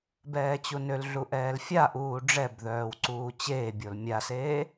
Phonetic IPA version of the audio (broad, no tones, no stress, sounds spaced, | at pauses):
b ɛː t͡ɕ u n ø l ɮ u ʔ ɛː l fʲ a ʔ uː ɖ͡ʐ ɛ b ð œː w ǀ uː t͡ɕ eː bʲ o l mʲ a s eː